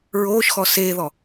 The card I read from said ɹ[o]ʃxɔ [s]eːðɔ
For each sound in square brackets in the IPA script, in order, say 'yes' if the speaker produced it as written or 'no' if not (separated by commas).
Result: no, yes